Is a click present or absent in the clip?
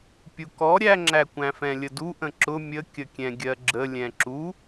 present